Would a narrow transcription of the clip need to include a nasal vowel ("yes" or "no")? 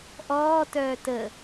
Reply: no